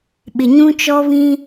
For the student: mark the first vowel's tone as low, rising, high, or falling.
low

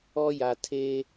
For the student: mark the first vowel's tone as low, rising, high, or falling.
high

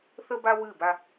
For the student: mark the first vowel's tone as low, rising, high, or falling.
high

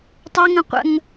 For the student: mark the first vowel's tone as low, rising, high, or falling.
high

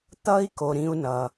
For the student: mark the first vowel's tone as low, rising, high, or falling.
high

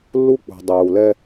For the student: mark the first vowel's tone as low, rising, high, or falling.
high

